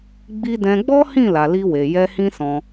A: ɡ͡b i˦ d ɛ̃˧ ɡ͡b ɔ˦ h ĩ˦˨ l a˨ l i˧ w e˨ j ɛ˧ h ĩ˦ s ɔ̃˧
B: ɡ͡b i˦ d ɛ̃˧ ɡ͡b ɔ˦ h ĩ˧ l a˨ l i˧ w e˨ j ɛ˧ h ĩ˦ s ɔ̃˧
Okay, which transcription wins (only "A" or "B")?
A